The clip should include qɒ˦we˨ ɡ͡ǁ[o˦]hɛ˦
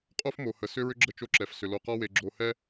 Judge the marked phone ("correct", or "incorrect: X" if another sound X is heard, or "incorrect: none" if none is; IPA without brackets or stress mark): incorrect: o˨